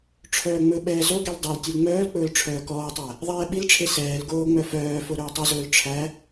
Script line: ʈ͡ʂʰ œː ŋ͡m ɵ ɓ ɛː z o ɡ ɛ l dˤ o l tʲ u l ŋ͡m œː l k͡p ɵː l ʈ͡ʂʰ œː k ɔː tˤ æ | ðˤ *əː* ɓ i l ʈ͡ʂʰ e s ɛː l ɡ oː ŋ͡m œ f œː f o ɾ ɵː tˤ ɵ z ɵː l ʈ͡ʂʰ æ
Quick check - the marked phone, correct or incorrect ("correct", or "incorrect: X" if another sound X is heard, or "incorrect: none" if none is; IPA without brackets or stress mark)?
incorrect: ɛː